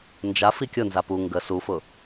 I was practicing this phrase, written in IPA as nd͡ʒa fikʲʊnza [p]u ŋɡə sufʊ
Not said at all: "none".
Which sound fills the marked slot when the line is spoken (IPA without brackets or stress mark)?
p